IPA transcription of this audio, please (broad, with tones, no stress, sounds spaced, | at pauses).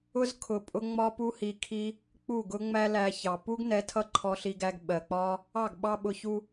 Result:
ʊ˦ z kʰ ʊ˨ pʼ ʊ˧ ŋ͡m ɒ˦ p u˦ h i˧ kʰ i˦ | k͡p u˦˨ ɡ ʊ˦ ŋ͡m æ˦ l æ˧ ç ɑ˨ p u˦ ɡ n ɛ˨˦ tʰ ʌ˦ ǃʰ ɔ˧ ɬ i˧ ɡ æ˧ ɡ ɓ ɜ˨ k͡p ɒ˦ | ɑ˦˨ ɡ ɓ ɑ˦ ɓ ʊ˧ ç u˦